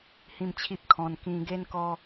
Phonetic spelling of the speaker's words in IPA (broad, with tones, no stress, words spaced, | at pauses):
hĩ˥˧mt͡ɕʰi˦p̚kʰɔ̃˧n kĩ˧ ɡe˦nkɔ˦